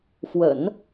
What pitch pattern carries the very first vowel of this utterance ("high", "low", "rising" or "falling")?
low